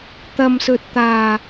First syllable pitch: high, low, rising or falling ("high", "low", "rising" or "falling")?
low